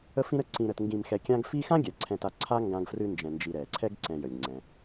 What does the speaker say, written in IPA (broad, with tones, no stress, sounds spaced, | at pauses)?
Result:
ə˦ f ĩ˦ ɾ ə˦ ǀ ĩ˨ ɾ ə˨ t ŋ ɡ ĩ˨ m x ɛ˨ kʲ ã˦ ɡ f i˦ x ã˥ ɡʲ ɛ˩ ǀʰ ɛ̃˨ t a˨ ǀʰ a˦ ŋ ɡ ã˦ ɡ f r ɨ˦ n d͡ʒ ɛ̃˨ n d͡ʒ i˨ ɾ ɛ˩ ǀʰ ɛ˦ ɡ ǀ ɛ̃˨ j ə˩ lʲ ŋ͡ǀ ɛ̃˩